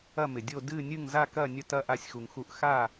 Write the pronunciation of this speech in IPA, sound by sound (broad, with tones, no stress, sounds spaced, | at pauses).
ɐ˥˨ m ɪ˨ dʲ o˥˨ d ɨ˥˨ nʲ ɨ˥˨ ŋ z a˥˨ k ɐ˥˨ nʲ ə˥˨ t ɐ˥˨ ʔ a˥˨ sʲ x u˨ ŋ x u˥˨ ʔ x a˥˨